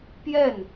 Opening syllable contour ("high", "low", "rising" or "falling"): falling